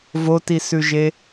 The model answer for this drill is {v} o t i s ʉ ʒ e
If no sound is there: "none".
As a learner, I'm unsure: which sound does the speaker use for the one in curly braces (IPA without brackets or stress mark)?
v